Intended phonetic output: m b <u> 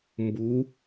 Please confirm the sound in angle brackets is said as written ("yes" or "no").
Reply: yes